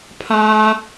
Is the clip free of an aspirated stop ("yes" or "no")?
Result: no